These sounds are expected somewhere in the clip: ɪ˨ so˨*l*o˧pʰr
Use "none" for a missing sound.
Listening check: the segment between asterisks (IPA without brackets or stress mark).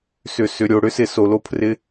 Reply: l